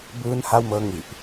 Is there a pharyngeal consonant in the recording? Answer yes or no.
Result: no